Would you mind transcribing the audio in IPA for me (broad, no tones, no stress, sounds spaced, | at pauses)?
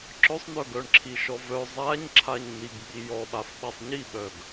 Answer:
ǁ œ sˤ n̪ œ ɡ œ ɳ ǁʰ i ʃ ɔ v œ zˤ a ɲ ǁʰ a ɲ n̪ i ɡ ɓ i j ɔ ɓ a f ɓ a sˤ ɲ i ɓ œ ɡ